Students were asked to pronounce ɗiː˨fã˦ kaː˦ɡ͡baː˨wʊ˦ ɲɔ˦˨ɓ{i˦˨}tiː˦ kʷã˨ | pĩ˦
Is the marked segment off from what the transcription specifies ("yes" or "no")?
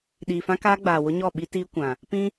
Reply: yes